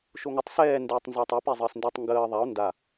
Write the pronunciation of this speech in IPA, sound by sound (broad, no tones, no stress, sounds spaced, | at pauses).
ʃ o ŋ ʊ tˤ s ɛː n d ʊː tˤ n z a tˤ ɛ p ɛ zˤ əː s n d ɛ tˤ ŋ ɡ əː ðˤ a o̯ n d a